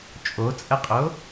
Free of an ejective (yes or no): no